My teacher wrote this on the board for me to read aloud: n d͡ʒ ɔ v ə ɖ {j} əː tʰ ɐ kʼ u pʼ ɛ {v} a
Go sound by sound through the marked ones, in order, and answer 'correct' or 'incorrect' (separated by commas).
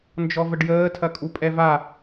correct, correct